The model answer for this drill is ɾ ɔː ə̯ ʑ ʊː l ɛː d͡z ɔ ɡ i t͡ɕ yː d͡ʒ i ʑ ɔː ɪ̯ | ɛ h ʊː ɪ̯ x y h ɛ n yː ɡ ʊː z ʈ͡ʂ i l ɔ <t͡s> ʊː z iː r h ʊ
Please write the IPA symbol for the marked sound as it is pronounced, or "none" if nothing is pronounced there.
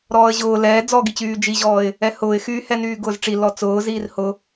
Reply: t͡s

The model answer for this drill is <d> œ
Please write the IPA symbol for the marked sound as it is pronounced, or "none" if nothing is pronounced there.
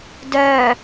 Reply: d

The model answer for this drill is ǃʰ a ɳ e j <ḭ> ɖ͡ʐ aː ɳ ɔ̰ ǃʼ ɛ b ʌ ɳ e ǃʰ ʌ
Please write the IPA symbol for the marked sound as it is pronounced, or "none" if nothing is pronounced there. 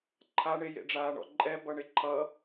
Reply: ḛ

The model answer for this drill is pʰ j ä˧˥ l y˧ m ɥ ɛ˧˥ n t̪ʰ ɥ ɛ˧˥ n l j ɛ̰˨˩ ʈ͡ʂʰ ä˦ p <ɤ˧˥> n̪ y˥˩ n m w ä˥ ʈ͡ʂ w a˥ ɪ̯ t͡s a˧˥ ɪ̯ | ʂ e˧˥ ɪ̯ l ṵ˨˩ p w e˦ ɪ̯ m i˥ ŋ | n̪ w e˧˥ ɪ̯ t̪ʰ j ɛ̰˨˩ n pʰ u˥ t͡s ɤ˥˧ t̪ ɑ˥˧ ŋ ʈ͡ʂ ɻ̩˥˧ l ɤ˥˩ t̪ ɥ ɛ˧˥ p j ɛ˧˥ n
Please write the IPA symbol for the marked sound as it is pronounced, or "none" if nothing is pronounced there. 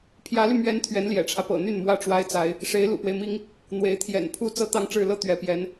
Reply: ɤ̰˨˩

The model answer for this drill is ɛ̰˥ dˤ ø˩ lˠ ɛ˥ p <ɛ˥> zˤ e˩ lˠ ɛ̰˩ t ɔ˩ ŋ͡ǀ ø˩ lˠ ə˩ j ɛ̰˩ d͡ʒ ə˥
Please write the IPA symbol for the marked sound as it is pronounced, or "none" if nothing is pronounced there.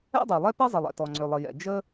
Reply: ɛ˥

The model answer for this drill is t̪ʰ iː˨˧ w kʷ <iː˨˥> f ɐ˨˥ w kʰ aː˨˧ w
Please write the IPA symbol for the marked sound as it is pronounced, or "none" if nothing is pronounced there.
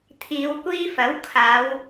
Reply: iː˥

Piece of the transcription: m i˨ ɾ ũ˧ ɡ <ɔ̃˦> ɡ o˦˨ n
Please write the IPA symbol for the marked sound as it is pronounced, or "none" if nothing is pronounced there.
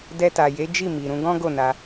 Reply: ɔ̃˦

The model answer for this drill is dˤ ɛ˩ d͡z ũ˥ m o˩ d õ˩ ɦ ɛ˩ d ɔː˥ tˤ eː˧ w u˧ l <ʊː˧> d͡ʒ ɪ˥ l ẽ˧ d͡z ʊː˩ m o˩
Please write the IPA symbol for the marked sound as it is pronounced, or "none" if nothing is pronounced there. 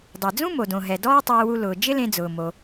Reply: ʊː˩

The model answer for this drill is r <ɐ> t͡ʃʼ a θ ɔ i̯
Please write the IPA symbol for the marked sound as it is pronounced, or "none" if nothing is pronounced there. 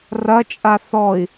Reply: ɐ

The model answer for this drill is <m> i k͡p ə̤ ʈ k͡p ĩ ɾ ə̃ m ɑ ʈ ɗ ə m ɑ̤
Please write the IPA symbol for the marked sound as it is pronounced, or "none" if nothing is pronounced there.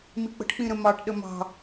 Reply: m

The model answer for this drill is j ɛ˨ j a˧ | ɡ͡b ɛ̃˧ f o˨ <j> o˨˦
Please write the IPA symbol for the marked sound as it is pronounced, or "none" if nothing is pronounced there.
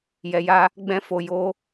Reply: j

